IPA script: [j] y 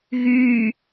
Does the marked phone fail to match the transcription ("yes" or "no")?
yes